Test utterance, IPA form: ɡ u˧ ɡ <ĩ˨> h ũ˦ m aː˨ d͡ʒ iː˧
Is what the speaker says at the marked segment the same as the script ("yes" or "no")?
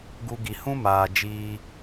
no